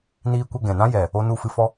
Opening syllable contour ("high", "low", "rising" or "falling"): high